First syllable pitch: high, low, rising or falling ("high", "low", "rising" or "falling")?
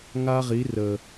high